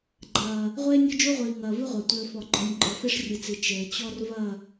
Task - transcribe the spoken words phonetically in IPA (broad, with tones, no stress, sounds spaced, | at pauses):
ɡ͡ǃ ɐː˨ | ʁʷ eː˦ nʲ ɔ˦ d͡ʒ o˦ ʁʷ iː˨ ŋ ɐː˨ v ɨ˦ ʁʷ a˨ tʷ ɘː˨ f ɔ˨ ɡ͡ǃ ɔ˨ nʲ ǃʼ ɔ˨ f e˦ ʂ rʲ ɨ˨ t͡s i˨ t͡ʃ ɘː˨ t͡ɕ ɔ˦ r v ɐ˦˨